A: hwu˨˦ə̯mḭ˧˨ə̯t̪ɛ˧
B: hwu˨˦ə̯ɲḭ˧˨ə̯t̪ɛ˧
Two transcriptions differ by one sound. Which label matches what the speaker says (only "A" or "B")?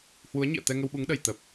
B